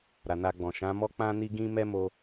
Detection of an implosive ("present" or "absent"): absent